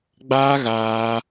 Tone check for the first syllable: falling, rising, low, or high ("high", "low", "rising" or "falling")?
high